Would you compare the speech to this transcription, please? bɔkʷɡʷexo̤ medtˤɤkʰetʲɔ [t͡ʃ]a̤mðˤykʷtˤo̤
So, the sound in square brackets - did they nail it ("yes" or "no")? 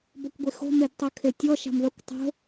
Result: no